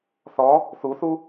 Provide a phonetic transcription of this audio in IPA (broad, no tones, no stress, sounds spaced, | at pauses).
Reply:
θ ɔ | θ u θ u